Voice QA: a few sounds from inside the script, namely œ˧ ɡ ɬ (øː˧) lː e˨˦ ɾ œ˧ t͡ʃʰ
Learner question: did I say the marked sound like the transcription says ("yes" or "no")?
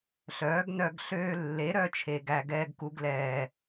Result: yes